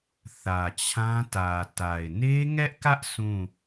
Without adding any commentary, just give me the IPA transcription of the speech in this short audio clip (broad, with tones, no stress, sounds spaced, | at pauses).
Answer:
θ ä˨ t͡ɕʰ ã˦ t ä˨ t a˨ ɪ̯ n e˦ ŋ ɛ˦ ʔ k ä˦ ʔ sʰ ũ˦˨